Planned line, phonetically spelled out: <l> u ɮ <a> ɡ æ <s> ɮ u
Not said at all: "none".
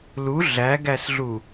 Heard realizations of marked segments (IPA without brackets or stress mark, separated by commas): l, æ, s